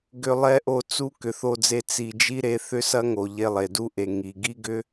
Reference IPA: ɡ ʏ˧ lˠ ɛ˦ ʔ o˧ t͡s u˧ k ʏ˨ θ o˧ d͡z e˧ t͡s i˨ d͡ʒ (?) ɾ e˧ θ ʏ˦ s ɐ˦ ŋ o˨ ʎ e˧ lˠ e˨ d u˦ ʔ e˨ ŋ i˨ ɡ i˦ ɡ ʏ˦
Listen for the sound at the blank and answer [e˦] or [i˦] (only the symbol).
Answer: i˦